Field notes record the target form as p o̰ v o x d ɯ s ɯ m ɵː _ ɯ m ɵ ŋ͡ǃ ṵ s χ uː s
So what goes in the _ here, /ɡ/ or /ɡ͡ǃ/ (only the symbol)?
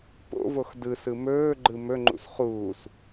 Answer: ɡ͡ǃ